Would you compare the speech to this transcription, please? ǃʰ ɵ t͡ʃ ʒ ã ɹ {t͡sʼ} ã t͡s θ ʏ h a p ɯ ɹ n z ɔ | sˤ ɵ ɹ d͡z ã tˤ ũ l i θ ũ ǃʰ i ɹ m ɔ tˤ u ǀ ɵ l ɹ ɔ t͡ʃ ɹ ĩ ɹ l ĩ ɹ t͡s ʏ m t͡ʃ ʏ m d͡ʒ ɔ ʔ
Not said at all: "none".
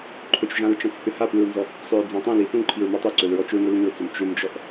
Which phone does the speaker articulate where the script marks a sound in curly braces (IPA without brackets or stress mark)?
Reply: t͡ʃ